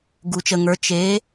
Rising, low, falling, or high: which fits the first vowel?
low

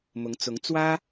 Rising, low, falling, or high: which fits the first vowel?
rising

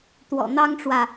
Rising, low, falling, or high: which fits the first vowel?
low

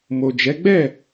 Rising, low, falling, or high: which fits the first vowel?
low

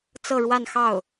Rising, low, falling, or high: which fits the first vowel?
falling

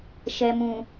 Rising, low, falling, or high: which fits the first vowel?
low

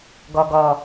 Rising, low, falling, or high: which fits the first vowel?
low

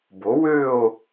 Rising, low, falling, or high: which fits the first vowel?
rising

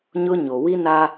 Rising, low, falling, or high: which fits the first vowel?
high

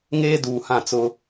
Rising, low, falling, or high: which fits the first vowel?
high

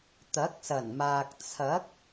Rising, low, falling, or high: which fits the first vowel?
rising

